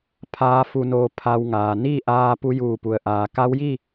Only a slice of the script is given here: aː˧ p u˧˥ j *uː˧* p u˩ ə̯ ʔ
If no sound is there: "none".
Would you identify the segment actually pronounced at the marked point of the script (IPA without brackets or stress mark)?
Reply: uː˧˩